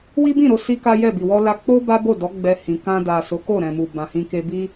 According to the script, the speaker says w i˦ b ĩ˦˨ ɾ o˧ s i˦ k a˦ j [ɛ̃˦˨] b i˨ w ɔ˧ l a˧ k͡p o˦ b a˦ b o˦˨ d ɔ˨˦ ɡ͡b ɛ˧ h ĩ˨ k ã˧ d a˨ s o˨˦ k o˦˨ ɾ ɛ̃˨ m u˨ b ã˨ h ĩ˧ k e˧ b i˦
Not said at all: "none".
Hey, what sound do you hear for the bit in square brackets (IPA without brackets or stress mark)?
ɛ˦˨